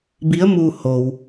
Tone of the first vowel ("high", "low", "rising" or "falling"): rising